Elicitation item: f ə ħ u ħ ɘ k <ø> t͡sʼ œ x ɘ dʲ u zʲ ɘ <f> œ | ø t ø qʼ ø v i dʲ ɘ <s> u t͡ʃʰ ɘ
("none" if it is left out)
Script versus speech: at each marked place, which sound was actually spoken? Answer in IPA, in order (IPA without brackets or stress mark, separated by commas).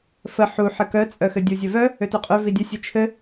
œ, v, sʲ